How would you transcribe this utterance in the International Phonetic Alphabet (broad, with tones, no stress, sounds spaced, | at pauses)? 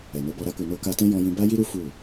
ɛ˨ n o˨˦ b ɔ˧ ɾ a˧ k u˨ n o˧ k a˧ t ɛ̃˦ j ɔ̃˧ j ĩ˧ b a˦ j i˦ ɾ u˦ f u˦˨